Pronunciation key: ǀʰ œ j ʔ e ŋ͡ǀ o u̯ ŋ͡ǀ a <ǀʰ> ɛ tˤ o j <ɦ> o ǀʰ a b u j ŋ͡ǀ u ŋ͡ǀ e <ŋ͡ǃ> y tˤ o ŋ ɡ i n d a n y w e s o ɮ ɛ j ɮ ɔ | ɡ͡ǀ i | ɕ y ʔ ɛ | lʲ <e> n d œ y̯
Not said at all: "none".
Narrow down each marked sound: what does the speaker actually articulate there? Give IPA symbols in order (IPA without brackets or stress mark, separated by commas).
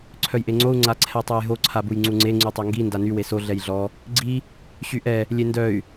ǀʰ, ɦ, ŋ͡ǀ, e